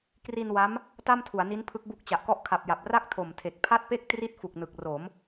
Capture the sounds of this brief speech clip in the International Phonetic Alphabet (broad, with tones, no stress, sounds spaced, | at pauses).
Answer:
k r i˧ n w a˦˥ m | t a˥˩ m tʰ u˩˦ a̯ n i˦˥ n pʰ ɯ˦˥ k̚ b u˦˥ k̚ t͡ɕ a˨˩ ʔ k ɔ˥˩ ʔ kʰ a˨˩ p̚ j a˨˩ p̚ r a˥˩ k̚ tʰ o˨˩ m tʰ e˨˩ k̚ pʰ a˥˩ t̚ p e˥˩ k̚ t r i˥˩ t̚ f u˨˩ k̚ n ɯ˨˩ k̚ r o˩˦ m